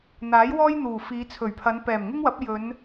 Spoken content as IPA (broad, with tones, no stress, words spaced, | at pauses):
n̪aː˨˥jwɔː˥jn̪uː˨˩ fiː˨˧t͡sʰɵ˨˩ɥpʰɐ˨˧n pɛː˨˩mŋɪ˥ŋwɐ˨˥p̚ jɵ˨˧n